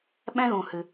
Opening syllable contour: high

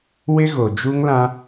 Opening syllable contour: high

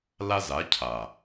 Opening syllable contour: high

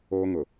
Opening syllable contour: high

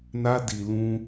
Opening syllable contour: high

